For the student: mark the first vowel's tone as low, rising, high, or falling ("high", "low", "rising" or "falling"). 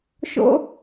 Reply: high